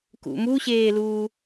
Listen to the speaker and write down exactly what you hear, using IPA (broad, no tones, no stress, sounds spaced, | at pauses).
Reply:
k ṵ m u ɕ eː l uː